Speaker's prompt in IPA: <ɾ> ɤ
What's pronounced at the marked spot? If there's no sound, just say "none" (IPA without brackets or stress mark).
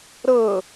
ɾ